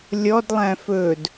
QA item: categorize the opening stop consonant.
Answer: plain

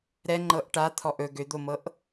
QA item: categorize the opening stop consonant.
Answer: click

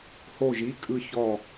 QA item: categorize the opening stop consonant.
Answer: ejective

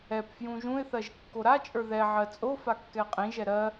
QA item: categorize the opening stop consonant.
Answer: plain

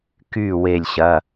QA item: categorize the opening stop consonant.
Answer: plain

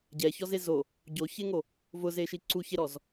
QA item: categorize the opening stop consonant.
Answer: plain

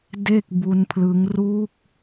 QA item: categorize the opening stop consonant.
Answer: plain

